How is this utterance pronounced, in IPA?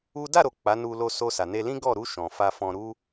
u˦ d a˦˨ ɾ o˨ k͡p a˨˦ n u˧ l o˧ s o˧ s a˨ n e˧ l ĩ˦ ɡ ɔ˦˨ ɾ u˧ ʃ ɔ̃˨ f a˧ f ɔ̃˧ ɾ u˦

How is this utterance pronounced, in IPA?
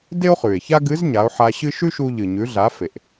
d e˥ o̯ χ ʉ˩ e̯ ç a˥ ɡ ɨ˧˥ z ɲ a˩˧ o̯ ħ a˧ ɕ ɨ˥ ʃ ʉ˥ ʃ u˧ ʎ ɨ˩ ɲ ʉ˩˧ ɮ a˩˧ f e˩ ʔ

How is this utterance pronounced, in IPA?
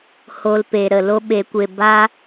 h o˧ l p e˨ ɾ ə˨ l o˦ ɓ e˨˦ kʷ e˧ b a˦

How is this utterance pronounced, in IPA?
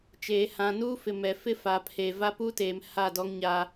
t͡ʃ eː˨ h ã˨ n uː˦ f ɪ˨ m ɛ˨ f ɪ˦ f a˨ pʰ e˨ v a˦ p u˦ t eː˨ m h a˦˨ d ɔ˦ ŋ ɲ a˦

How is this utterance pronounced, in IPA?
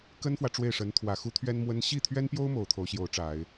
k ə˥ n f w ä˨ ʈ͡ʂ w e˥˩ ɪ̯ ʂ ə˧˥ n t̪ʰ w ä˨˩ x u˥ t̪ʰ ɥ ɛ˥ n m w ə˥ n ɕ i˥˩ t̪ʰ ɥ ɛ˥ n p j o˥ ʊ̯ m o˨˩ ʊ̯ t̪ʰ o˧˥ ʊ̯ ɕ j o˧˥ ʊ̯ ʈ͡ʂ a˨˩˦ ɪ̯

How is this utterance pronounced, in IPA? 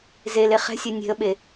z e l e χ ɛ̤ sʲ ɛ nʲ e̤ ə̯ ɓ e

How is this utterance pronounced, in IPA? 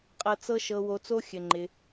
qʼ ɤ˧ t͡s ɤ˦ ʃ ɤ˧ w o˧ t͡s o˦ xʲ ɘ˧ ŋ͡ǃ ɪ˧

